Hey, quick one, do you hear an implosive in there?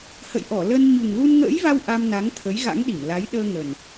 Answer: yes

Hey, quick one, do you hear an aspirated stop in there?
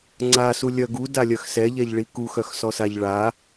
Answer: no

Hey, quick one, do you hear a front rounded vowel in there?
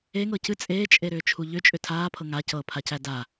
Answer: yes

